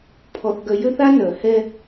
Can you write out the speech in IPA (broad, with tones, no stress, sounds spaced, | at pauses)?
pʰ ɔ˦ θ ɡ œ˦ j ø˦ θ a˦ n œ˨ h ɛ˦